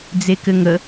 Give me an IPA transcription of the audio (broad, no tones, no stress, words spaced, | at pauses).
d͡zekɘŋə